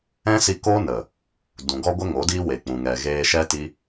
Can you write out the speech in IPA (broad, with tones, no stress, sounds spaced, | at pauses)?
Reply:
ɛ̃˦ s i˧ k oː˦ n ə˨ | d ũ˨ ɡ ɔ˦ ɡʷ ə˦ ŋ o˨˦ d iː˦ w e˨ k͡p ũ˨ ŋ ɛ˨ ɣ eː˧ ʃ ɛ˦ t i˦